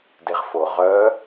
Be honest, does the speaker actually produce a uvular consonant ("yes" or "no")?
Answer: yes